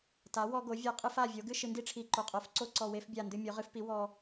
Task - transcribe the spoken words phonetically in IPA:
ta˩˥wɔ˧ɡo˩˥vʲa˧˩ qʼɨ˥˧fa˧˩vʲo˩˥ ɡɨ˥˧ʃɨ˧ndi˥˧ʈ͡ʂʰi˧˩ ǃo˧˩qʼo˧˩f ǀo˥˧ǀɔ˧˩ we˥˧fbʲa˧˩ ndɨ˧mʲo˩˥ʁɨ˩˥fpi˩˥ wɔ˧

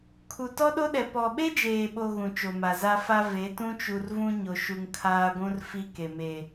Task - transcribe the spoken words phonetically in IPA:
kʰu˨tɔ˦ɗo˦ɗɛ˨ pɔ˨ɓe˦d͡ʒeː˨ɓo˨ ɣũ˨t͡ʃo˨ma˨ za˦fa˦ ve˨˦tũ˦t͡ʃu˨rvũ˦ ɲo˨ʃu˨ŋ kʰaː˦ɡʷũ˦r fi˦ke˨ me˨

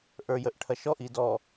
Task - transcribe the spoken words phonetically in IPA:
ʔə˞jəʔʈʰɐʃɔʔ idɔ

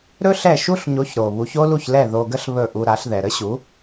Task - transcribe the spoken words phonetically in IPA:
ɾɵ˥ ɬɛ˥˩ʃu˥ɬɲo˩˥ç ɾo˩ βu˩˥ço˥lu˥˩çlɛ˥˩ ðo˧ɡə˥ɬ βɵ˥˩ʔu˧ɾa˩˥ɬðɛ˩ ɾə˥ɕu˩˥

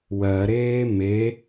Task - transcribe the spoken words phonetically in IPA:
wɜɾeː me

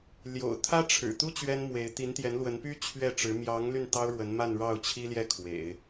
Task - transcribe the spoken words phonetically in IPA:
ljo̰˨˩ʊ̯t̪ʰä˥ʈ͡ʂʰɻ̩˨˩t̪u˥ t͡ɕɥɛ˥nmwe˧˥ɪ̯ t̪i˧˥nt̪jɛ˧˥nlwə˧˥npy˥ t͡ɕʰɥɛ˥˩ʈ͡ʂɻ̩˧˥ mjɑ˧˥ŋ ly˥˩nt̪ɑ˥ʊ̯ɻwə˧˥n ma˥˧nɻɑ˥˩ʊ̯t͡ɕʰi˥ljɛ˥˩ kʰwḛ˨˩˦ɪ̯

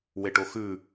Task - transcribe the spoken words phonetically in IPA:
weʈoxʉ

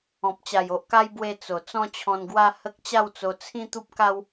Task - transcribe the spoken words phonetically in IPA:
ɔ̃˨p̚t͡ɕa˨˩jo˨ʔka˦j bwe˧ t͡so˨˩ t͡sɔ̃˦t͡ɕʰɔ̃˧nɡwa˦ hə˦k̚ t͡ɕa˥˧wt͡so˧t͡sʰĩ˦ t̪u˦p̚ka˦w

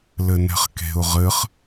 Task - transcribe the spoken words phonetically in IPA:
lɘnɛ̤χke̤ʊ̯ ʁɘχ

